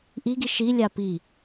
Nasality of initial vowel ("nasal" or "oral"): oral